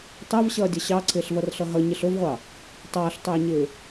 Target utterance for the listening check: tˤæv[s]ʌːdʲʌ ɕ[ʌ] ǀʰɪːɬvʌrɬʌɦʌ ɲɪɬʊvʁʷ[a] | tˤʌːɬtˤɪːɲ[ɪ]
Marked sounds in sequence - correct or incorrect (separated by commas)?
incorrect, incorrect, incorrect, incorrect